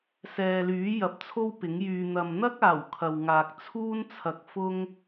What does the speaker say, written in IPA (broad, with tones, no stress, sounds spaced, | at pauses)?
s ɛː˨ l yː˨˥ j ɐ˨˥ p̚ t͡sʰ o˥ w p ɪ˨˥ ŋ j yː˧ n̪ ɐ˨ m n̪ ɐ˥ k̚ aː˨˩ w kʰ ɐ˨ w ŋ aː˨ k̚ t͡sʰ uː˥ n t͡sʰ ɐ˧ k̚ f ʊ˥ ŋ